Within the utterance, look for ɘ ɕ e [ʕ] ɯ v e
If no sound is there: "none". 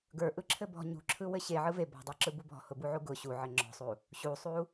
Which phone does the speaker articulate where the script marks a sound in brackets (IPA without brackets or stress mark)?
ʕ